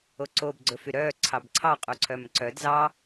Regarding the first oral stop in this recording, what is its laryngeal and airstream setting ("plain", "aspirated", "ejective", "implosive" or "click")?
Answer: click